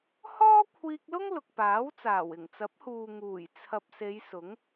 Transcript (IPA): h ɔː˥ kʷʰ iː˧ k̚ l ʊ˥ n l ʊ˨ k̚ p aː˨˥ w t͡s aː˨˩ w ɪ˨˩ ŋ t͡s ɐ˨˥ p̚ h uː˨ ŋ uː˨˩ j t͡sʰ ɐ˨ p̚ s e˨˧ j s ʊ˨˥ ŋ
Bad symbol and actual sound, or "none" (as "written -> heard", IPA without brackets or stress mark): n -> ŋ